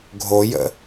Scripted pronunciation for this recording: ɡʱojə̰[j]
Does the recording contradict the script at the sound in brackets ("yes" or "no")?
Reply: yes